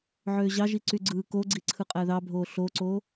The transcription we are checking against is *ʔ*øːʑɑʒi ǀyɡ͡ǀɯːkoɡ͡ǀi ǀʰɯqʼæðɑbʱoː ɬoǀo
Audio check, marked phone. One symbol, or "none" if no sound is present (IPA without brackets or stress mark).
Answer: ʕ